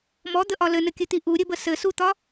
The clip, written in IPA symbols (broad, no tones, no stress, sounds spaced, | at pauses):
m ɔ d̪ ə ʔ ɒ l ɘ n ɘ kʲ ɘ t̪ i ʔ u ɾʲ ɘ b ə s ɘ s u t̪ ɒ